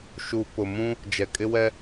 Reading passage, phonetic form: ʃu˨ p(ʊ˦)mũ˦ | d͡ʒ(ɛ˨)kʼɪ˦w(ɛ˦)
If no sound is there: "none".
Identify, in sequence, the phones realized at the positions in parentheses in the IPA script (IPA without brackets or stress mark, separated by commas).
ʊ˨, ɛ˨, ɛ˦